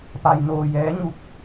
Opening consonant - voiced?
no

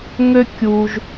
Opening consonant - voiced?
yes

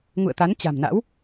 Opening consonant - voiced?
yes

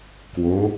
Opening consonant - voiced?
no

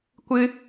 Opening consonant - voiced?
no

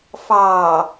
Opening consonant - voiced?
no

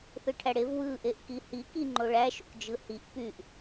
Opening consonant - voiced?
no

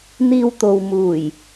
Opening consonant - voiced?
yes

